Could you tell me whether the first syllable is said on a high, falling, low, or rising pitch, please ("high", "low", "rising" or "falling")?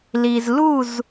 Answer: low